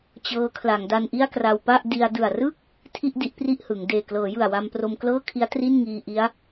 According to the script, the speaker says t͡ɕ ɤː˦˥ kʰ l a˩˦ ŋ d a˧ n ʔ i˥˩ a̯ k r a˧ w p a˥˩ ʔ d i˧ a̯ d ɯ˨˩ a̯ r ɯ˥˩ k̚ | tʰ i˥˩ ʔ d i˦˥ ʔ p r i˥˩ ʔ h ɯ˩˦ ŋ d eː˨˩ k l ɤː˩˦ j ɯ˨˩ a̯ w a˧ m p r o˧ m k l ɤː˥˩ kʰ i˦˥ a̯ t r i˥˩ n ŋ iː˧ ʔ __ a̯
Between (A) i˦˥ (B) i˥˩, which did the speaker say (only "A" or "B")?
A